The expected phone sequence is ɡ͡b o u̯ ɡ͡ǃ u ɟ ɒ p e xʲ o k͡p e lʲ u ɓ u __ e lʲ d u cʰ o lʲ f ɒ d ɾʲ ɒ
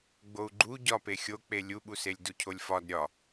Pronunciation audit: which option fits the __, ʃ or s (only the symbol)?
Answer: s